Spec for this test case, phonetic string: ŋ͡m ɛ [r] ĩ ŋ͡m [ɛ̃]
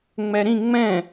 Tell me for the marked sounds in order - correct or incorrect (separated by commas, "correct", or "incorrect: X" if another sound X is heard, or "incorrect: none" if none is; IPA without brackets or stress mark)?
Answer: incorrect: ɾ, correct